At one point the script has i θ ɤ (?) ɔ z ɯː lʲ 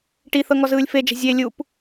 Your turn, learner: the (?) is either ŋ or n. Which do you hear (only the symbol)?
ŋ